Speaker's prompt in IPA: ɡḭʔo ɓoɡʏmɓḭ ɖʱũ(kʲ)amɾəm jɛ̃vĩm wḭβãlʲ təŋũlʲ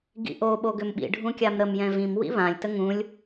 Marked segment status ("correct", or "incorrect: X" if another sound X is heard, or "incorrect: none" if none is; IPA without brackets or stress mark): correct